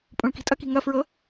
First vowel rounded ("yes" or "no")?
yes